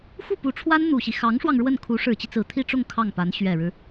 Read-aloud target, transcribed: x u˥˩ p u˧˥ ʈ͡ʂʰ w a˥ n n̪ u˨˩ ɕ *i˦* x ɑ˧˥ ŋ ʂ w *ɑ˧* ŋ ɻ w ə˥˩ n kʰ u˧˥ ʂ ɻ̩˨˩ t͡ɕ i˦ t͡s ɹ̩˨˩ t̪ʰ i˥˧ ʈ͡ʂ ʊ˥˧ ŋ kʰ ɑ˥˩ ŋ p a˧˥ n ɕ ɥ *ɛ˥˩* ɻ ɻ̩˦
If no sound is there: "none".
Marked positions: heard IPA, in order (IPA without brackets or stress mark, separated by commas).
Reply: i˦, ɑ˧, ɛ˨˩